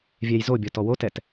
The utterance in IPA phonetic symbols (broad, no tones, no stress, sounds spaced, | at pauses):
vʲ ɛ j z o bʲ ɔ t ɔ w o t ɛ t